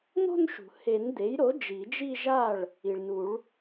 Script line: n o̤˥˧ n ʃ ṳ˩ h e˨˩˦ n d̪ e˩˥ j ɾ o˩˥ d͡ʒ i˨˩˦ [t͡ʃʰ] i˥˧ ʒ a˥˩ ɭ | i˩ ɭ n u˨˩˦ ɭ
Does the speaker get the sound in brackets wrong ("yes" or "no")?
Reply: yes